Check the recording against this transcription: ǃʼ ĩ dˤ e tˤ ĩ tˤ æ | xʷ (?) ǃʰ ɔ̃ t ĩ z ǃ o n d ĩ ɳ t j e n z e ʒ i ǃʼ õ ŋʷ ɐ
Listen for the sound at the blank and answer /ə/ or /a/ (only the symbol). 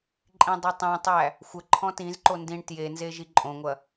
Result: ə